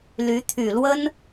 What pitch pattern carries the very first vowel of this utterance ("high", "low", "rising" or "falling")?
rising